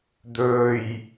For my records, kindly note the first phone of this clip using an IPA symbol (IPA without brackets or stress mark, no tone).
d̪